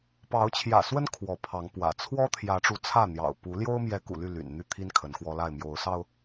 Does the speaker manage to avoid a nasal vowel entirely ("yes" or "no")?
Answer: yes